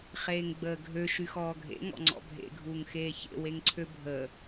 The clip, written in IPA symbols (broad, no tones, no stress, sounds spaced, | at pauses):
χ eː ŋ ɡ͡b əː ɡʱ ø ʃ y x ɔː ɡʱ ḛ ŋ ɔ̰ ŋ͡ǀ ɔ̰ bʱ ḛ ɡʱ uː ŋ x eː ç ḛ w e ŋ ǀʰ ø bʱ əː